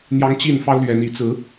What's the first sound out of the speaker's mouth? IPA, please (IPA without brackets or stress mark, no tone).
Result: n̪